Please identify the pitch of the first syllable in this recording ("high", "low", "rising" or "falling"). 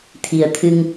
low